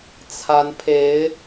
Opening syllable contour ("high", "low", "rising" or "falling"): rising